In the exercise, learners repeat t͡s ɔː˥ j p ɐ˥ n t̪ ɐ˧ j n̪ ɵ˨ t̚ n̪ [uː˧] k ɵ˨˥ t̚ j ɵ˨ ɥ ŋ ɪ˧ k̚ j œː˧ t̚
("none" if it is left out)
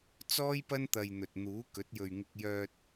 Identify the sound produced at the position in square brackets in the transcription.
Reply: uː˨˥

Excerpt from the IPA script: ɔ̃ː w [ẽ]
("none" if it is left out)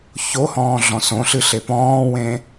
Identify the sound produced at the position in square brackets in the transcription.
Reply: ẽ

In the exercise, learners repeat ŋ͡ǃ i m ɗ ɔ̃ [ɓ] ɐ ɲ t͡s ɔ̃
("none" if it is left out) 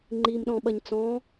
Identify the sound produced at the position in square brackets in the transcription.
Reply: ɓ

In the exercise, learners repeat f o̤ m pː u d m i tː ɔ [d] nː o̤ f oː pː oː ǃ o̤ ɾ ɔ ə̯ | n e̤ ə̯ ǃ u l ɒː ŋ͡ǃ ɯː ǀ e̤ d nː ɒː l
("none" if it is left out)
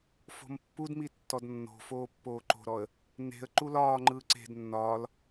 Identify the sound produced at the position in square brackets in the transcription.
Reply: d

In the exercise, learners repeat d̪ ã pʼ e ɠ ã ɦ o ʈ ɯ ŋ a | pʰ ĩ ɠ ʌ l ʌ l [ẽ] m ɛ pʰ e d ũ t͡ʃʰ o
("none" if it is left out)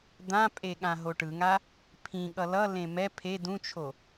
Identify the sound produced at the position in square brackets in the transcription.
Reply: ẽ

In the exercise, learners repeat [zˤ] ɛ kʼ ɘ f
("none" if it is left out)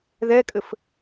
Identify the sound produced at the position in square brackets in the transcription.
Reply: ð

